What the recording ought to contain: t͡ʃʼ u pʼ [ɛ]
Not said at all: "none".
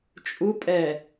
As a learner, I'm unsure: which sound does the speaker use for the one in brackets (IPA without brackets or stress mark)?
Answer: ɛ